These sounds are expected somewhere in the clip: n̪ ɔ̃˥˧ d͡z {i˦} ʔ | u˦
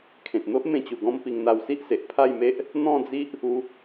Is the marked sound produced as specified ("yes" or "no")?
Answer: yes